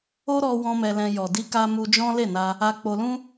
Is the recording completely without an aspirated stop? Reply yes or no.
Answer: yes